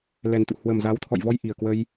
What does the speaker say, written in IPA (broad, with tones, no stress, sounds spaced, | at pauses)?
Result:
l ɛ˨˩ n t̪ ṵ˧˨ h w ə˨˩ m z a˨˦ w t̪ʰ ɔ̰˧˨ j v ɔ˧ j ʔ i˨˩ ə̯ k w ə˧ j